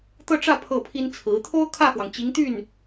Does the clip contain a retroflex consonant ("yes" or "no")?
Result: yes